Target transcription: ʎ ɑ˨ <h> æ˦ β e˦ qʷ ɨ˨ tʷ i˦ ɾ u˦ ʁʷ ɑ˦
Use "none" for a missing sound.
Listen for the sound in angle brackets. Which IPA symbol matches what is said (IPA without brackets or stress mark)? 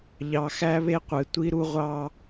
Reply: x